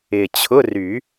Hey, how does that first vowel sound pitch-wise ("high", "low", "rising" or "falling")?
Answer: low